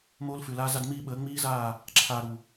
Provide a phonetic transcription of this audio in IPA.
m oː˦ l f ʉ˨ l aː˦ z a˦ d m iː˦ ɓ əː˨˦ ŋ͡m iː˦ z aː˦˨ | ǁʰ aː˨ ɾ u˨

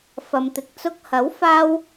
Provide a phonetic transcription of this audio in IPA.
f ɐ˨ m t̪ ɪ˨˥ k̚ t͡s ʊ˧ k̚ h ɐ˨˥ w f aː˥ w

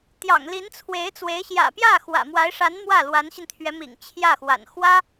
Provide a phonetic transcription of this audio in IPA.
t̪ j ɑ̰˨˩ ŋ l i˧˥ n t͡sʰ w e˧˥ ɪ̯ t͡s w e˧˥ ɪ̯ ɕ j ä̰˨˩ p j ä˥˩ x w ä̰˨˩ m w a˧˥ ɪ̯ ʂ a˧˥ n m w ä˥˩ l w a˧˥ n ɕ i˧ n t̪ʰ ɥ ɛ˧˥ m ḭ˨˩ ŋ t͡ɕʰ j ä˥˩ x w a̰˨˩ n x w ä˥

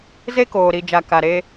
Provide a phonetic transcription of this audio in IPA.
z e˦ k oː˨ ɾ i˨ d͡ʒ a˨ k a˨ ɾ e˦

